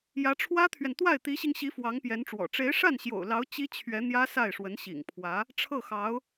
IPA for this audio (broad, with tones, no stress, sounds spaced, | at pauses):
j ä˧˥ ʈ͡ʂʰ w ä˥ t̪ʰ ɥ ɛ˨ n t̪ w a˥˩ ɪ̯ t̪ i˧˥ ɕ i˧ ŋ ɕ i˧˥ f w ɑ˧˥ ŋ p j ɛ˧˥ n ʈ͡ʂ w ɔ̰˨˩ ʈ͡ʂ e˧˥ ɪ̯ ʂ a˥˩ n ɕ j o̰˨˩ ʊ̯ l ɑ˧˥ ʊ̯ t͡ɕ i˥ t͡ɕʰ ɥ ɛ˧˥ n̪ j ä˥ s a˥˩ ɪ̯ ʂ w ə˧˥ n ɕ ḭ˨˩ ŋ pʰ w ä˧˥ | ʈ͡ʂʰ ɤ˥˩ x ɑ˧˥ ʊ̯